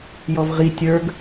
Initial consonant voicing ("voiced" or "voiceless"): voiced